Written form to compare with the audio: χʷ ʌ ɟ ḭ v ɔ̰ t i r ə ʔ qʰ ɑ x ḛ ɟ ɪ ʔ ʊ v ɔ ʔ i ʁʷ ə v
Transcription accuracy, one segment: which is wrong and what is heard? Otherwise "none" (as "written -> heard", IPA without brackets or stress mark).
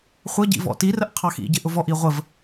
ḛ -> ḭ